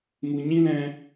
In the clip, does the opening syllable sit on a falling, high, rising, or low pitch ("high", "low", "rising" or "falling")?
low